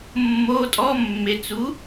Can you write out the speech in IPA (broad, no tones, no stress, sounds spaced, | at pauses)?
mː o tʼ ɔ mː e t͡s u